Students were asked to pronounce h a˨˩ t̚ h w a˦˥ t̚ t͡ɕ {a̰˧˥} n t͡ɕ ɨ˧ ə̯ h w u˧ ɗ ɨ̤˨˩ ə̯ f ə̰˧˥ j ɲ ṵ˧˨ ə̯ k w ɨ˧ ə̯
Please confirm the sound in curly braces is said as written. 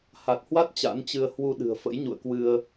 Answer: yes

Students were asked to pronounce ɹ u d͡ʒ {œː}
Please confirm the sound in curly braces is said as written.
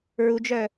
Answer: no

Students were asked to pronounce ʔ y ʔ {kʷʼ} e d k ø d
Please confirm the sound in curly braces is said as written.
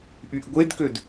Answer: no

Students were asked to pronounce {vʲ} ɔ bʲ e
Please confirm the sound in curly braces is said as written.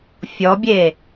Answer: no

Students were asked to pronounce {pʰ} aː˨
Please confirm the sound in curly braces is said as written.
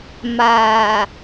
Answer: no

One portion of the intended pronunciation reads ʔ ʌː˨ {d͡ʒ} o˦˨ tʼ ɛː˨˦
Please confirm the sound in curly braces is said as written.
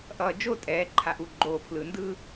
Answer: yes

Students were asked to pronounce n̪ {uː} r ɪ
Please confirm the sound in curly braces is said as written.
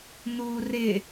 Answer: yes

